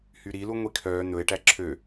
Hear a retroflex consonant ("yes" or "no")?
yes